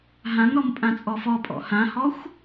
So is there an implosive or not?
no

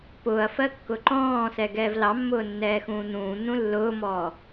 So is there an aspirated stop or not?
no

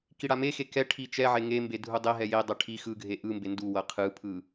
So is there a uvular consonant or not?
yes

